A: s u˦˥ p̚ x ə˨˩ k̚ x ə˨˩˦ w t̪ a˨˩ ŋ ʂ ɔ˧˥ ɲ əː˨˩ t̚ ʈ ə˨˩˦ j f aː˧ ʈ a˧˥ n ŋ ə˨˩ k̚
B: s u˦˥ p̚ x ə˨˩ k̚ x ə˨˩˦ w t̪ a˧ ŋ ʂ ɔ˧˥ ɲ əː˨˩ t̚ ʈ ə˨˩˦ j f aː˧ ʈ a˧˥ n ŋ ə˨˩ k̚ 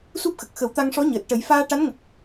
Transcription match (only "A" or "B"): B